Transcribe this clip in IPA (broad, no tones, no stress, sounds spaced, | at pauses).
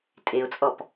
tʼ e ʊ̯ t͡sʼ ɔ p